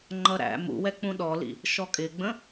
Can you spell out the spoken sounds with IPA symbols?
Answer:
ŋ͡ǃʌɾæ̰ mṵwɛk͡pũ ɗɔlḭ | ʃɔkʼɪɡ͡bə̃

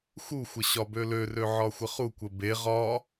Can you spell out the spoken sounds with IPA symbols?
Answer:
xuxʷə ɕɒbølørø ʕɒxʷəχukʷə be ʁɒ

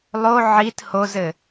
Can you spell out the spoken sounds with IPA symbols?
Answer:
lˠo ʕit hozɘ

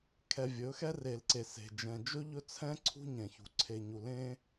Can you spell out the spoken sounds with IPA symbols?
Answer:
kʰɛ˨vʲɵ˨˦ xɛ˦ re˨lǀe˨ se̤˨d͡ʒɛ̃˨ d͡ʒɵ˦ʎɵ˦t͡sʰɛ̃˦ ǀʰṳ˦ɲɛ̃˨çṳ˨ ǀʰe˨ɲu˨lẽ˦

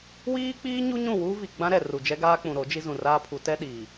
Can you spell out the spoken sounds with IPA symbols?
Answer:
wiː˦k͡piː˦ɲu˦ ɲũ˦˨wuː˦vi˨ ɡ͡bã˦ɾɛ˨ ru˨d͡ʒɛ˦ɡaː˦k͡pũ˨ ɾo˨˦d͡ʒi˦ zũ˨raː˦ pʰu˨˦tɛ˦ɗiː˨

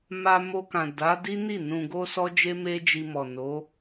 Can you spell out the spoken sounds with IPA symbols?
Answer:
ma˧mo˧kã˨ da˨˦di˦ ni˦˨nũ˧ɡo˦sɔ˦ d͡ʒe˦me˦d͡ʒi˧mɔ˨ no˨˦

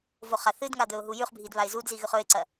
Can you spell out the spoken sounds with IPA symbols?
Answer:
voχaθɨdŋa d̪ɵʊ̯ɦujʉχbʱid βaɪ̯zudzi ɣʉχɵɪ̯ǀɐ

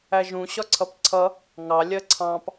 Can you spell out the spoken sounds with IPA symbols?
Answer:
æʒũ ɕɒǀʰʌpǀʰʌ | ŋɑ lʲɜǀʰɑ̃p

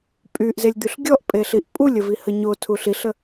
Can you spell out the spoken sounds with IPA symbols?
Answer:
pʼyʔzelʲd̪yɬ ɡʲɔʔpʼeɬiʔ pʼulʲəvihə ɲotʰu ɬiɬə

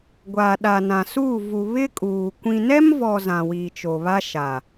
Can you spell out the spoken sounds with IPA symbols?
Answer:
ɡʷaː˨ɗa˨nã˨suː˦˨ vu˨ βɪ˦kʼuː˨ kʷĩ˨nɛ˦mvɔ˨ zã˨wiː˨t͡ʃo˨βa˦ ʃa˨

